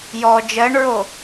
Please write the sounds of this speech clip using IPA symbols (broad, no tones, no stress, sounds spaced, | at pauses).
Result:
j ɔ d͡ʒ ɜ ɳ ɹ o